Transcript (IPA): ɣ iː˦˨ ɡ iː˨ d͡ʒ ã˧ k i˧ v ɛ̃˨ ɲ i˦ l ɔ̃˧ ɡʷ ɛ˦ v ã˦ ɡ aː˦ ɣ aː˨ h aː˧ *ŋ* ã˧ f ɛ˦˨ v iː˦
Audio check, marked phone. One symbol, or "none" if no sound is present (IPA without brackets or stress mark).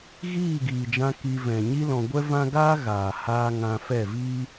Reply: ŋ